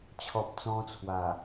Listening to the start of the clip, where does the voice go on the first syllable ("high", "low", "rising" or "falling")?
low